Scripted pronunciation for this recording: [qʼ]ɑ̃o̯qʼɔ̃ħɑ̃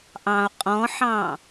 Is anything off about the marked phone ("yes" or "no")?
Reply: yes